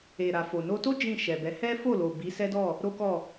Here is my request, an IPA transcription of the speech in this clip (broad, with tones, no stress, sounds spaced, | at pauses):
e˨ ɾ a˨ f o˨ n o˧ t o˦ d͡ʒ ĩ˦˨ ʃ ɛ˨ b ɛ˨˦ h ɛ˦ f o˦˨ l o˨ b i˨˦ s ɛ˦ d ɔ˦˨ | ɾ o˦ k ɔ˦˨